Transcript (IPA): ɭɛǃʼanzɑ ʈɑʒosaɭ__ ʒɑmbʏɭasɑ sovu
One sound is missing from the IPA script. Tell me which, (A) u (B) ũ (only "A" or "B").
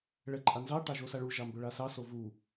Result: A